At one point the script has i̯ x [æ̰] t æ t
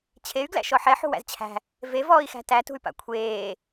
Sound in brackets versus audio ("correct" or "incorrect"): incorrect